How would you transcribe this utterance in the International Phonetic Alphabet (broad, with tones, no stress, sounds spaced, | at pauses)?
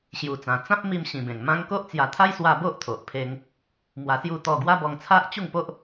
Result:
ɕ j u˨˩ t͡s ã˨˩ t͡s ã˦ p̚ m i˧ m ɕ ĩ˨˩ b ẽ˨˩ ŋ m ã˦ ŋ k o˦ ʔ t͡s j a˧ t̪ʰ a˦ j s w a˧ b o˦ ʔ t̪ʰ o˨ ʔ pʰ e˧ ŋ | m w a˧ s j u˥˧ t̪ ɔ˥˧ ɡ w a˦ b ɔ˧ ŋ t͡sʰ a˦ ʔ t͡ɕ u˥˧ ŋ p o˦ ʔ